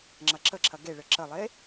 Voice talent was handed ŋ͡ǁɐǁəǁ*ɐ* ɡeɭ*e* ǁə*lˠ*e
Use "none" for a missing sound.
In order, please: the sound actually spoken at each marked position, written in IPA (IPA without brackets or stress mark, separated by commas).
ɐ, ɘ, lˠ